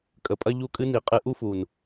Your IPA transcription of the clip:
kʼ ə˨ pʼ ɐ˦ ʎ u˦˨ kʼ ɨ˦ n i˨ qʼ ɨ˧ ʔ u˦ f u˨ n

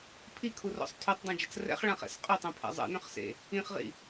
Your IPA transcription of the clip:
pʰ i kʰ u r ɔ̰ sˤ tʰ y tˤ dˤ õ d͡ʒ ə t͡s r ɛ̰ χ ɭ ã χ ɛ̰ s qʼ ø tˤ õ pʰ ɛ̰ zˤ ḛ n œ̃ χ s ḛ | ĩ χ ʁ ḭ

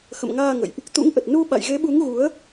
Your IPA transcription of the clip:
x ə̰˧˨ m ŋ aː˧ ŋ ə̰˧˨ j ʔ | t̪ ṵ˧˥ ŋ ʔ ə˨˩ t̚ n u˧ ɓ a̰˧˨ j ɣ e˨˦ ɓ u˨˦ ŋ ɣ u˨˦ ə̯

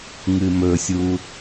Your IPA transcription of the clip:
ŋ ɨ m ɵ sʲ u

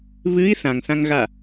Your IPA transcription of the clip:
β ɨ i̯ θ ã ŋ θ ã ŋ ɣ a

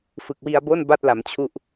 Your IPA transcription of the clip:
f ɯ˨˩ k̚ w i˧ a̯ b o˥˩ n b a˥˩ t̚ l a˩˦ m t͡ɕʰ u˥˩ ʔ

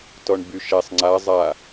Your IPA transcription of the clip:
t ɔ ɳ b y ʃ ɛ sˤ ŋ͡ǀ a zˤ a

